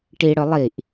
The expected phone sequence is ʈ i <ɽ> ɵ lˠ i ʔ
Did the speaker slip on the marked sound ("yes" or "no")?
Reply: no